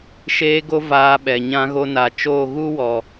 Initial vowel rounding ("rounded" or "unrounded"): unrounded